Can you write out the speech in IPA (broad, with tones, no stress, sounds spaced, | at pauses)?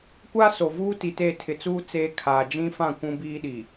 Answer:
kʷ aː˦ s o˨ v uː˦ t i˨ t eː˦˨ tʰ ɪ˨ t͡s uː˦ t͡s eː˦ kʰ aː˨ d͡ʒ ĩ˦ f ã˦˨ kʷ ũ˦ b iː˦ ɗ iː˨